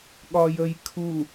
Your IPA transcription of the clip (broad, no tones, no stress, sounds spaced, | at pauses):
ɠ ɒ j ə j kʰ u